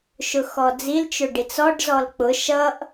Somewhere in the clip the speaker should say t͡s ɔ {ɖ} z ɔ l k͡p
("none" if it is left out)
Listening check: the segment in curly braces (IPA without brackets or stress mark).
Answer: ɖ